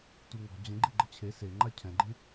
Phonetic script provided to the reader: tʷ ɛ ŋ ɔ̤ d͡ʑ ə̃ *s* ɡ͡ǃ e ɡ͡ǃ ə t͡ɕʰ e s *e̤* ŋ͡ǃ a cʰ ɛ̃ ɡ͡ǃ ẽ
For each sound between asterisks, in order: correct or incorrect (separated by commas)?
incorrect, incorrect